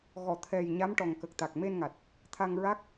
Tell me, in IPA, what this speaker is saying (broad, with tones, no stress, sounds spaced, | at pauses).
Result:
ɣ ɔ˨˩˨ t̪ʰ ɛ˨˩ j ɲ a˧˥ m ʈ ɔ˨˩ ŋ k ə˨˩ k̚ t̪ a˨˩ k̚ m e˧ n ŋ a˨˩ t̚ | t̪ʰ a˧ ŋ ɹ a˦˥ k̚